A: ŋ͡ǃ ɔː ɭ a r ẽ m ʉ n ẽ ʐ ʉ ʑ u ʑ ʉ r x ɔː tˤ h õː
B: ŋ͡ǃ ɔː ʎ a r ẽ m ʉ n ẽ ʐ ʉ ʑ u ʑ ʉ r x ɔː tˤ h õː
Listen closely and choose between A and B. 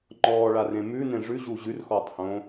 A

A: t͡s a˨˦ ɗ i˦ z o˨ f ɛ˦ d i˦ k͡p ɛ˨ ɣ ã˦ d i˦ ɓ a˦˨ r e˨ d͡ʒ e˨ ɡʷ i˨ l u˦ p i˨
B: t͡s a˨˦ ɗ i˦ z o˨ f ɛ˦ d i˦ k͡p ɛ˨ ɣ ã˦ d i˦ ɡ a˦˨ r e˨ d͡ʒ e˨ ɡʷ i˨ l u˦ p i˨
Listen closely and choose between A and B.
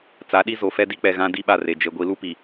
A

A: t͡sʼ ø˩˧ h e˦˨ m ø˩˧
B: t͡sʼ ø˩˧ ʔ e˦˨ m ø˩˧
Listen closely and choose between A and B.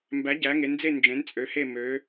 A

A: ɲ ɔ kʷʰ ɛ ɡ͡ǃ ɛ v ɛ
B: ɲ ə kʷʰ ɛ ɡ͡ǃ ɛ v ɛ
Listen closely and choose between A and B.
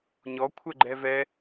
A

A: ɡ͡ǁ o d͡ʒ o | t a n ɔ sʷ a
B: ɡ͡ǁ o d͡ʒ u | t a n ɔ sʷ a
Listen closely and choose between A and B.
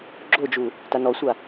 B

